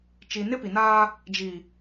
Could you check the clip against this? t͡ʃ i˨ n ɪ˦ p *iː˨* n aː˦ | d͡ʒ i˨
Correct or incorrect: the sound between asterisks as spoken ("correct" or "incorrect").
incorrect